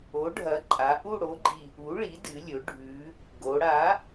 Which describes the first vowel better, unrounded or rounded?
rounded